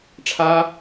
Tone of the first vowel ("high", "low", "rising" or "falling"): high